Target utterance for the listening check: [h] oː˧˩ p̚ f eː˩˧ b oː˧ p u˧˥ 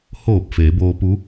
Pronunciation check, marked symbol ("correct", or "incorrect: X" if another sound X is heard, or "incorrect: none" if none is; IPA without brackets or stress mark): correct